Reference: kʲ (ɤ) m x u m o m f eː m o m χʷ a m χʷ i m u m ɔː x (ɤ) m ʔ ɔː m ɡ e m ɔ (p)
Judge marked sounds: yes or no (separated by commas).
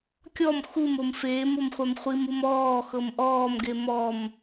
no, yes, no